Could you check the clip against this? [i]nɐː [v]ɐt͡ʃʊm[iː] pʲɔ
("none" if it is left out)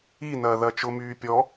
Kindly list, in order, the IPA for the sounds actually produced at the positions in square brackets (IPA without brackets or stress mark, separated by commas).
i, ð, yː